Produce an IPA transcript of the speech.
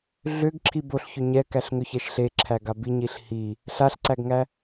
ɮ ʏ ɡ ǁʰ i b o ɬ ç ʏ ɲ ɛ k æ ɬ ŋ ʏ ç ɛ ʃ ɬ e ǁʰ æ ɡ a b i ɲ i ɬ h i | ɬ a ɬ ǀ æ ɡ ŋ æ

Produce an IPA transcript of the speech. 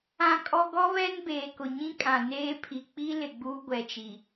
ã˦ kʼ ɔ˦ ɡ ɔ˦ β ɛ˦ n b eː˨ k ʊ˨ ɲ ĩ˦ kʼ ã˨ n eː˦ pʰ i˨ k͡p i˦ l ɪ˨ ɡ͡b uː˦ ɡʷ ɛ˨ t͡ʃ i˨

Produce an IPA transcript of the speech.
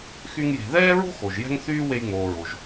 x y˥ ŋ j e̤˧ ð ɛː˥ ɹ o̤˥ x o˩ ʒ j ɛ̤˥ ŋ θ yː˥ w e˧ j ŋ͡m oː˩ ɹ o˩ ʒ

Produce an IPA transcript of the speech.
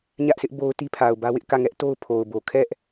ɲ ä˦ ʔ s ɪ˦ ʔ b o˦ ʊ̯ t i˦ pʰ a˨ ʊ̯ b ä˦ w ɪ˦ ʔ k ä˦˨ ŋ ɛ˦ ʔ t o˦ ʊ̯ pʰ o˨ ʊ̯ b o˨ kʰ ɛ˦ ʔ

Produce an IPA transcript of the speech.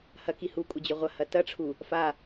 h ɐ k i h u kʷʼ ɐ d͡ʑ ɵ ʁʷ ɐ h ɐ t ɐ ʈ͡ʂʰ u | f a

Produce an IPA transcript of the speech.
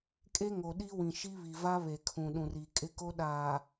kʼ e˦ ŋ o˨ ɗ i˦ w ĩ˨ ʃ i˦ β i˨ v a˦ β e˨ kʰ ũ˨ ɗ ũ˨ r i˨ kʼ ɪ˦ k o˦ ɗ aː˨

